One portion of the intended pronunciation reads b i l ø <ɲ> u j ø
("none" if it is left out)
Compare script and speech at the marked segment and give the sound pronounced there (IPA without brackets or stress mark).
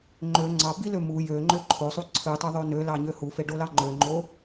m